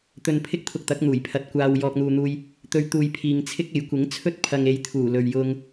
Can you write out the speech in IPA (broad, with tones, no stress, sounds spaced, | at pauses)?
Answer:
t̪ ɵ˨ n pʰ ɪ˥ k̚ t̪ʰ ʊ˧ k̚ t̪ ɐ˨˥ k̚ n̪ uː˨˩ j pʰ ɐ˨ t̚ kʷ aː˨ w j ɔː˨ k̚ n̪ uː˨ n̪ uː˧ j | t̪ ɵ˧ ɥ t̪ uː˨ j pʰ iː˨ ŋ t͡sʰ ɪ˥ k̚ e˨˥ j kʷ ɪ˨˥ ŋ t͡sʰ ɵ˥ t̚ pʰ ɐ˨ ŋ e˨˧ j t̪ʰ uː˨˩ l ɵ˧ ɥ j ʊ˥ ŋ